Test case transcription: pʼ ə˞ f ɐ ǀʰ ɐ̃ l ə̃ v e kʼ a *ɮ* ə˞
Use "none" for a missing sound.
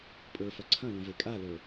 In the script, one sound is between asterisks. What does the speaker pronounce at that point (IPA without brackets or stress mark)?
l